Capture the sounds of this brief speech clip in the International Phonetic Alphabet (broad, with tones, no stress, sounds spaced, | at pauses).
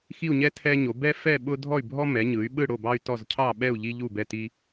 x i˦˨ u̯ ɲ ɛ˦ tʰ ɛ˦ ɲ o˩˧ b ɛ˦ f ɛ˦˨ ɓ ʊ˦ dʱ ɔ˦˨ y̯ bʱ ɔ˦ m ɛ˩˧ ɲ ɯ˩˧ y̯ ɓ ɯ˦˨ ɽ o˦˨ b ɑ˦ y̯ t ɔ˦˨ z cʰ ɑ˦˨ ɓ ɛ˦˨ u̯ ʎ i˦ ʎ u˦˨ b ɛ˦˨ t i˦